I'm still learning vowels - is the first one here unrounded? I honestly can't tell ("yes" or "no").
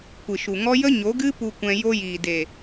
yes